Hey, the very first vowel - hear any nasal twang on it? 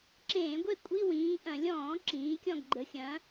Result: yes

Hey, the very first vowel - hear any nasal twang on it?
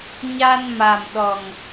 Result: no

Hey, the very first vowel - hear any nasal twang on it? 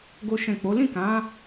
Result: no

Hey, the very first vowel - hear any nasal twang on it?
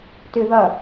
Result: no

